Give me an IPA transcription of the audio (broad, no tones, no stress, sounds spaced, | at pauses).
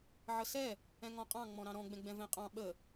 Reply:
ʕ ə s ɛ | ɛ̃ ŋ ɔ̃ qʼ ɑ̃ ŋ͡m ɔ̃ ɾ ɑ̃ ɾ ɔ̃ ɡ͡b ɛ̃ ɡ͡b ɛ̃ v ɛ̃ qʼ ɑ̃ ɓ ə